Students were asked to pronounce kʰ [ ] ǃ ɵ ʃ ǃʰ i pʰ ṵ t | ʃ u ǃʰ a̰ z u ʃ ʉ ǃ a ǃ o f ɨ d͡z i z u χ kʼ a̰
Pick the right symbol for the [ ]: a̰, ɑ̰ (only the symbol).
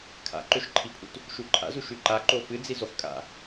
a̰